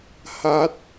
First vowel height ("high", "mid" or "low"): low